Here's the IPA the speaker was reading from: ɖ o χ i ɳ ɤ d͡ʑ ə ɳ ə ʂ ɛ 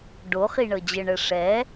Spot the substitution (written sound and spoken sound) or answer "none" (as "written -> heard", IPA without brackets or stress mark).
none